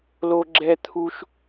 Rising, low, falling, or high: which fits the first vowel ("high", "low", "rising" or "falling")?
high